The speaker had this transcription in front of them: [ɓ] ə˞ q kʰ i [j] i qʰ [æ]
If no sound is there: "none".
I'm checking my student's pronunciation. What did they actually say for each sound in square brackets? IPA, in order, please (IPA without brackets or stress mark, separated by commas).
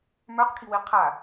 m, w, a